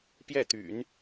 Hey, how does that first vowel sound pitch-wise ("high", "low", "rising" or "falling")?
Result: falling